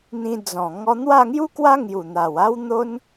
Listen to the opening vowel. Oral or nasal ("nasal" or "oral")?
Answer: nasal